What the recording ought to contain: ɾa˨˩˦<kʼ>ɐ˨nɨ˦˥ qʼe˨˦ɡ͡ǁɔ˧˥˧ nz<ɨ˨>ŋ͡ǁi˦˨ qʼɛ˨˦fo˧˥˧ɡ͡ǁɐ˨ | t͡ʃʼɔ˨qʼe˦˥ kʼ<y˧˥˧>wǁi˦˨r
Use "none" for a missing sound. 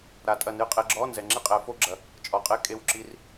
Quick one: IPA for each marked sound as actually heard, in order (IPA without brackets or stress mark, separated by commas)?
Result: tʼ, ɛ˨, e˧˥˧